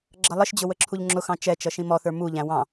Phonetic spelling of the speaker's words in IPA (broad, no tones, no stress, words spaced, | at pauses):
ɡ͡ǁʌlˠəʃd͡ʑʊ wəǁʰuʎŋ͡ǁʊxɑ̃ t͡ʃɛt͡ʃʌ ʃĩmɔθə˞ muʎæ̃ wɑ̃